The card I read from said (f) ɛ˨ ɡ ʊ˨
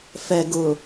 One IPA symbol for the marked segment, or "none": f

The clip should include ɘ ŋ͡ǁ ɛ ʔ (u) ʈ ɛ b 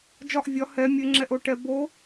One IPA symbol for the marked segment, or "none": o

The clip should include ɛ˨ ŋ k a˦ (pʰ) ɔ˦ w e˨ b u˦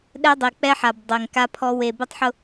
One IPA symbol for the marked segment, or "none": pʰ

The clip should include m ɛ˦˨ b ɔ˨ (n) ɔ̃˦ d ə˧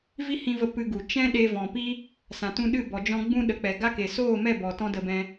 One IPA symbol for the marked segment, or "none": t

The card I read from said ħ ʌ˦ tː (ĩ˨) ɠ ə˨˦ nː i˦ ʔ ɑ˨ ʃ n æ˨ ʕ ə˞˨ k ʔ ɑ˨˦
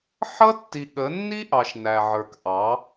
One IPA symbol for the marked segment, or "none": i˨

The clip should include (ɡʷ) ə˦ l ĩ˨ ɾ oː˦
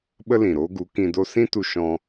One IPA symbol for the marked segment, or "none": ɓ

